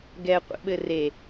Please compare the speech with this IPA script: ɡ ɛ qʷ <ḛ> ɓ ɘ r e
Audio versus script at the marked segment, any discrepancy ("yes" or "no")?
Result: no